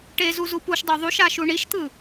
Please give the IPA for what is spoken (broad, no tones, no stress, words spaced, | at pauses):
ʈezuzu puʃdˤo ðˤuʃaʃu ɳiʃt̪ɯ